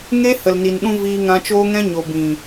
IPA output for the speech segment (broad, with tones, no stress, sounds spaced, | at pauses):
ŋ e˦ h ə˨ l n i˨ n ɗ ũ˧ v iː˧ ŋ ã˧ t͡ʃ oː˦ ŋ ɛ̃˦ ɲ o˨ b ĩ˨